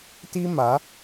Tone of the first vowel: high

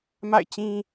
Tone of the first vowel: falling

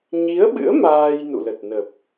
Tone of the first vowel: rising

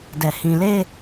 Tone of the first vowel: low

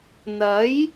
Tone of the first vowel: rising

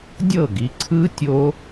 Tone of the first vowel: falling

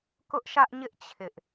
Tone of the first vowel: high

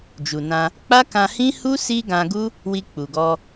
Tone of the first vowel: low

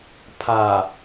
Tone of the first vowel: low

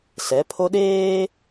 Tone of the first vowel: rising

